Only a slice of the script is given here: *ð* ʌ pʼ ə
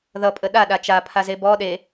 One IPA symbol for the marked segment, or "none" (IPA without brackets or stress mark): ð